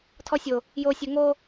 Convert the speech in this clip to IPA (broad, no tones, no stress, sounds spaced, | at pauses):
tʰ ɔ sʲ o | j o sʲ ɵ ŋ o